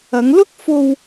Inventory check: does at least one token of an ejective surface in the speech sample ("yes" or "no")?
no